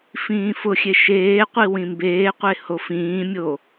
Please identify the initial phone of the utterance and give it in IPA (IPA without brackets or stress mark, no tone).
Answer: f